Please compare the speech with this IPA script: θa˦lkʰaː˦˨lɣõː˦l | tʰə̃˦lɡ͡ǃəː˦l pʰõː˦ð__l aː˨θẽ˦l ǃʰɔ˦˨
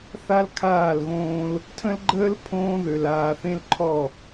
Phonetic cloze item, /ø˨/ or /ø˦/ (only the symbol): ø˨